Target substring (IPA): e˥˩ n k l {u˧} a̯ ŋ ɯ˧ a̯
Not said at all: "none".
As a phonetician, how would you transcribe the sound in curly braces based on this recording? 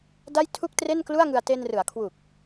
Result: u˥˩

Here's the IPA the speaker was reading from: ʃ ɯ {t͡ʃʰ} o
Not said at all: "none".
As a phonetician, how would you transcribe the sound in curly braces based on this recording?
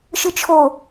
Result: t͡ʃʰ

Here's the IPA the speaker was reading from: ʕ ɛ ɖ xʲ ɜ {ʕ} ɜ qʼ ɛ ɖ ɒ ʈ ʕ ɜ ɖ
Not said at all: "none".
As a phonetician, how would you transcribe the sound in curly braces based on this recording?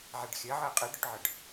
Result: ʕ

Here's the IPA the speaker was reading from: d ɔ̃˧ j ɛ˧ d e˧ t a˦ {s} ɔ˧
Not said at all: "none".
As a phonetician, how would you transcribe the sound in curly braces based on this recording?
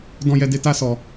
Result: s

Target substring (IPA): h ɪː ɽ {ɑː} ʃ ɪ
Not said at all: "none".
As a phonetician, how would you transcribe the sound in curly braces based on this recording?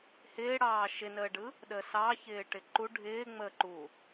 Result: ɑː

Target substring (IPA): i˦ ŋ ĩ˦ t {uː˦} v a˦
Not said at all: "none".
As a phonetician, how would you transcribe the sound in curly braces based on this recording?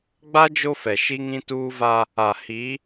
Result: uː˦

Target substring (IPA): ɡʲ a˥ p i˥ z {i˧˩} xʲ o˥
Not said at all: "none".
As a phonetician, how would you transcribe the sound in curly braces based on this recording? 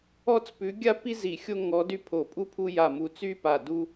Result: i˧˩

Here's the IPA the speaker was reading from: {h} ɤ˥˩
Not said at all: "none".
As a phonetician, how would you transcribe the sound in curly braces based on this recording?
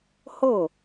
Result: h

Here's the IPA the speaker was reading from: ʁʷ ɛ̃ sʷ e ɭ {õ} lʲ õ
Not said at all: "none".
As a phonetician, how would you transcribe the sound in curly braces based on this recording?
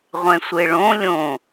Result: õ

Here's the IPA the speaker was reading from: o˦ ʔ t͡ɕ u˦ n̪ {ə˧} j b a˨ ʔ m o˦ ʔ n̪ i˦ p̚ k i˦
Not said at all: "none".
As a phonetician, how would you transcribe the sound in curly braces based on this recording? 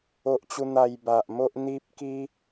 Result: a˧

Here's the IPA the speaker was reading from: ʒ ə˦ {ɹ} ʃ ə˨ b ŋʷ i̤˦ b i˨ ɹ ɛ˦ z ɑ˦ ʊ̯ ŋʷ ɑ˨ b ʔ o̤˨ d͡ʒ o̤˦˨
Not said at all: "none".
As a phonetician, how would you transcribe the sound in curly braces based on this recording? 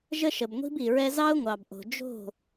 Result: none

